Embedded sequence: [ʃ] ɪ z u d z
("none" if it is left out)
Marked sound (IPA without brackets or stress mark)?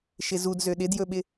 ʃ